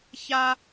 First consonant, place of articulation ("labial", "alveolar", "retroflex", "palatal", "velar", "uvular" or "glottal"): palatal